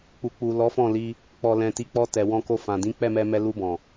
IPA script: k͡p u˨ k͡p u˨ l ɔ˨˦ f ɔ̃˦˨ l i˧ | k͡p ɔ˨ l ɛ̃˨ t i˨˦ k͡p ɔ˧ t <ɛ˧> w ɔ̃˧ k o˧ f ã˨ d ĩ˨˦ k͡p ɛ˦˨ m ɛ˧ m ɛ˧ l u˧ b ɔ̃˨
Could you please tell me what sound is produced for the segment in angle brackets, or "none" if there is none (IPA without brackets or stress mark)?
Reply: ɛ˨